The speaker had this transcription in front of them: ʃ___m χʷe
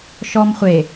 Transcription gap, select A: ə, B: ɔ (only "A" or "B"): B